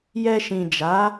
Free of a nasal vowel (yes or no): no